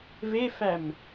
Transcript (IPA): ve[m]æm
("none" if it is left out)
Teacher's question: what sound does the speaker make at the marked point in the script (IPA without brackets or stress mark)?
f